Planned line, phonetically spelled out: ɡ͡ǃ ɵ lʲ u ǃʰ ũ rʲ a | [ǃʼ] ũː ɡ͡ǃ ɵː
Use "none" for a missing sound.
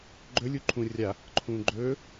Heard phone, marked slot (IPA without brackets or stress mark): ǃʰ